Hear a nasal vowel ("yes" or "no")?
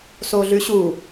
no